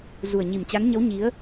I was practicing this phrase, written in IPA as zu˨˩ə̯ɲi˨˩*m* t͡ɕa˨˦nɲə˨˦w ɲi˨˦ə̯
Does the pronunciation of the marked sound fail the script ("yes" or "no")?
no